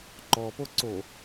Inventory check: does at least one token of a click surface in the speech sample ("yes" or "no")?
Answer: yes